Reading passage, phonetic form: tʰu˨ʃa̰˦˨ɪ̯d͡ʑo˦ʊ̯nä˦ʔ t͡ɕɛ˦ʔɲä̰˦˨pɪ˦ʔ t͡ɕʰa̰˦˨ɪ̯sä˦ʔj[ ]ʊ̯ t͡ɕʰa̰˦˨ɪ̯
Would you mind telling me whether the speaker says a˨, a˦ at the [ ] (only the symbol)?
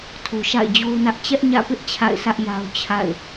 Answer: a˦